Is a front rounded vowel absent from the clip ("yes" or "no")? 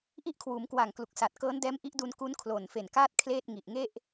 yes